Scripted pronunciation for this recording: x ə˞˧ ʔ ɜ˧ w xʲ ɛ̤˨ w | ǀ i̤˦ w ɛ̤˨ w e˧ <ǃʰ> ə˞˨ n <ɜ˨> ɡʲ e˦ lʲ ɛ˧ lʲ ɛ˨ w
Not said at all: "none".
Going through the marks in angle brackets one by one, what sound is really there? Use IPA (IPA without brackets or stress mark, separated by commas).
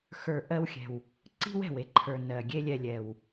ǃʰ, ɜ˨